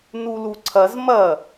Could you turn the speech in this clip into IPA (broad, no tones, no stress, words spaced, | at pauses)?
nuluǀʰɐz mɐ